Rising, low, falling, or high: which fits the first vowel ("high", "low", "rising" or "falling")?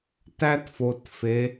high